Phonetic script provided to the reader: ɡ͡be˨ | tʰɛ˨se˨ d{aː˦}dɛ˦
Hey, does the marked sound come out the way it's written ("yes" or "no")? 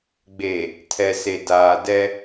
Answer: no